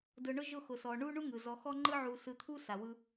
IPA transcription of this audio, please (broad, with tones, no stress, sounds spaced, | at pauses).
d ʊ˧ ɳ ʊ˦ ʒ ʊ˦˨ x ʊ˨ s ɔ˨ ɳ u˦ ɳ u˦ ŋ ɯ˨ z ɔ˧ x ɔ˦ ŋ͡ǃ ɯ˦ ʕ u˧ s ɯ˧ t̪ʰ u˦ s a˨ w ɯ˧